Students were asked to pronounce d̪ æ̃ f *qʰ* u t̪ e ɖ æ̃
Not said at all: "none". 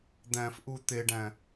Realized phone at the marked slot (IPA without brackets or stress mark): ʔ